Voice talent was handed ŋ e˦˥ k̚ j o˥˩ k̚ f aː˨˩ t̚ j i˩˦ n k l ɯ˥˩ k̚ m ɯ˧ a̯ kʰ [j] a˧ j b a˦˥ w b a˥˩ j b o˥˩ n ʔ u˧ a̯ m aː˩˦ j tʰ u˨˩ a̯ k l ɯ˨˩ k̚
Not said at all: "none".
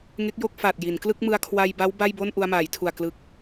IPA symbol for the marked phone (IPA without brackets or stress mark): w